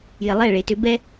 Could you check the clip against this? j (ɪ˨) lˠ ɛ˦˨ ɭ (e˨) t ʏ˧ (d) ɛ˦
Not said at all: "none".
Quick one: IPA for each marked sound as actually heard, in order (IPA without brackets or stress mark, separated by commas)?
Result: ɪ˨, e˨, b